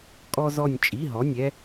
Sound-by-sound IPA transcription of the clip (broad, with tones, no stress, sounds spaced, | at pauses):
kʼ ɔ˥ z ɔ˥˧ nʲ t͡ʃʼ i˧˥˧ ɦ ɔ˧˥˧ nʲ ɛ˥